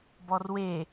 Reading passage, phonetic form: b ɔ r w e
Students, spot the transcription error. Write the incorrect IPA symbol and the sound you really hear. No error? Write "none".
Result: none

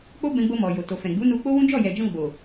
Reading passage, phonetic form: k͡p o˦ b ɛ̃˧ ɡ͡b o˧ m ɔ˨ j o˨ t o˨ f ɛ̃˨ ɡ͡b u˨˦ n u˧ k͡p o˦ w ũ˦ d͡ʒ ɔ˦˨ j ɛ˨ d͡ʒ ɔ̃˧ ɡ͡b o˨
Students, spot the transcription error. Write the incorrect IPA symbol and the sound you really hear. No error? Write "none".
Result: none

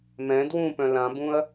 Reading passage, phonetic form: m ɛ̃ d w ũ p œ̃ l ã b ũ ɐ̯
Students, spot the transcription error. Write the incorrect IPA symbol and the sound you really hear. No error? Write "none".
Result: none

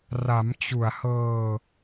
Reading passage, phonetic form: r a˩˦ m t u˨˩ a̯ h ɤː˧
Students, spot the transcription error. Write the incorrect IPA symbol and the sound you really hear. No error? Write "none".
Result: t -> t͡ɕ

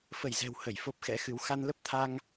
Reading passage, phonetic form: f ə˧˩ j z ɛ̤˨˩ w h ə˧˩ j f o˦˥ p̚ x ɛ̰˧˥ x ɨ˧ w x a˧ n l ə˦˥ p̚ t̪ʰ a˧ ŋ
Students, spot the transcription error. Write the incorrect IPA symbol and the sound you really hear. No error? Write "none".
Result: ɨ˧ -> ɨ˨˦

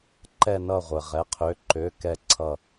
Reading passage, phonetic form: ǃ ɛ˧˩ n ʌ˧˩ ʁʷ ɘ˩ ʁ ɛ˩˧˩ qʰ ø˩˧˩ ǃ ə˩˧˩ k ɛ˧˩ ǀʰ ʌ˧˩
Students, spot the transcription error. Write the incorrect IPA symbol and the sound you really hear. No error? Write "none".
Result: ə˩˧˩ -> ø˩˧˩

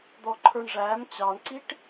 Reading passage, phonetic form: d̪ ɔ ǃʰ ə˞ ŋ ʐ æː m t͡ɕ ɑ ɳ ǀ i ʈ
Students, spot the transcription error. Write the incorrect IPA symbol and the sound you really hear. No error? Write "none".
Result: ŋ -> ɳ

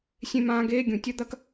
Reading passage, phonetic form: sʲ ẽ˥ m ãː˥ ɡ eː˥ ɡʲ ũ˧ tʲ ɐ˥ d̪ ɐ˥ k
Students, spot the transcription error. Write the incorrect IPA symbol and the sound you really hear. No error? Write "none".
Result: none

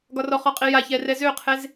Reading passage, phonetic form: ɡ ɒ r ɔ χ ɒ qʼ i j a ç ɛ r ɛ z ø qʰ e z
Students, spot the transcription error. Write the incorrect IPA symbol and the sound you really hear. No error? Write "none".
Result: none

